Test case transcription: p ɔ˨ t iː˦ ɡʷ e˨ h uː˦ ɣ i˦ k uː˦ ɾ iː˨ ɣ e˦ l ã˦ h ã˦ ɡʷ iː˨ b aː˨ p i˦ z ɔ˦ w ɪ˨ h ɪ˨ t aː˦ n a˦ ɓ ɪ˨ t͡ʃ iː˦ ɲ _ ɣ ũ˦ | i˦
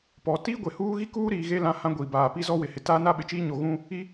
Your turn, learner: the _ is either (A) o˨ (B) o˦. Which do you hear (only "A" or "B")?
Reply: A